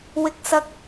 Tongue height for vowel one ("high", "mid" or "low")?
high